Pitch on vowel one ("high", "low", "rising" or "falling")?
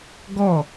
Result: falling